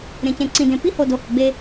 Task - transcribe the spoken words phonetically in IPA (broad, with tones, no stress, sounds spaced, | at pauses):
ɾ ẽ˨ c ẽ˨ ǀ ĩ˨ d ẽ˨ p i˦ h o˨ d o˨ h ʊ˨ ɡ͡b e˦